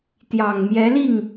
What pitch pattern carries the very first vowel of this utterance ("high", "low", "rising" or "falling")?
low